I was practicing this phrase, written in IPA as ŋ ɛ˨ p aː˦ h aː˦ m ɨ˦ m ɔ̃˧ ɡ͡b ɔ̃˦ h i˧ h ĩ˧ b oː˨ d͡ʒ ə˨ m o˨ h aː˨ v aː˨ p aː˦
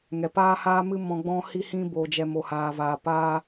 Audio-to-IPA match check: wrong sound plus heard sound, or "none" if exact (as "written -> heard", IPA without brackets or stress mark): ə˨ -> ɛ˨